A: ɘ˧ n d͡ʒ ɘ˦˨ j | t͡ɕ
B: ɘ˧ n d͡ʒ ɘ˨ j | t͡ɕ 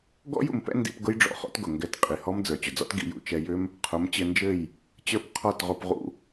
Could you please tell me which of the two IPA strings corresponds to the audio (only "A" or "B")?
A